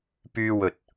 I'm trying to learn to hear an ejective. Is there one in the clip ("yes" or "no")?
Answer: no